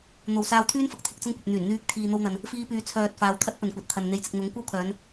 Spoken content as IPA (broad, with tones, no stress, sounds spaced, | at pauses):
n̪ o˨ w s aː˧ w t̪ʰ yː˥ n f ɐ˨ k̚ t̪ʰ ɪ˨˥ k̚ t͡s ɐ˥ ŋ kʷ ɐ˨ p̚ n̪ yː˨˩ n n̪ yː˧ k̚ t̪ʰ iː˨ n̪ o˧ w n̪ ɐ˨ n | f iː˧ p yː˨ t͡sʰ œː˨ t̚ f aː˨ w t̪ʰ ɐ˥ t̚ p ɵ˨ n kʷ ɐ˨˥ t̚ t̪ʰ ɐ˨ n n̪ e˨˥ j t͡s ɪ˨ k̚ n̪ ʊ˨˥ ŋ kʷ ɐ˥ w kʰ œː˨˧ n